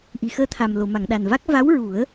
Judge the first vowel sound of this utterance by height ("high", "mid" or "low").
high